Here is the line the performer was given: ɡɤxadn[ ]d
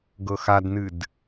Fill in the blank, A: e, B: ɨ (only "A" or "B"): B